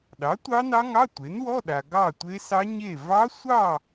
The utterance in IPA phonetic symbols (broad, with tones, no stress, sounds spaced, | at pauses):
ɗ ɑ˩˥ tʷ ɑ˦˥ n ɑ˦˥ ŋ ɑ˧˥˧ tʷ e˩˥ n w ɔ˧˥˧ ɗ a˨ ɡ ɑ˥˨ tʷ e˦˥ s ɑ˦˥ ɲ e˥˨ v ɑ˦˥ sʷ ɑ˥˨